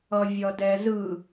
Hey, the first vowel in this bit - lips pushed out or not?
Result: no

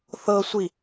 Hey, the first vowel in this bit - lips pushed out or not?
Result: no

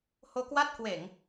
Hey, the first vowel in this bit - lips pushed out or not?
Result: yes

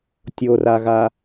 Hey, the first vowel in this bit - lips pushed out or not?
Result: yes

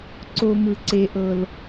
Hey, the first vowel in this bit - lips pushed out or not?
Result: yes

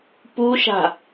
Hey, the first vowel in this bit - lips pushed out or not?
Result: yes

